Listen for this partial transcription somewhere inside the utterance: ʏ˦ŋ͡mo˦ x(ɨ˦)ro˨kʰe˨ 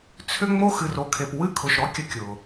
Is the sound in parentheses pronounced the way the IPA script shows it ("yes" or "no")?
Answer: no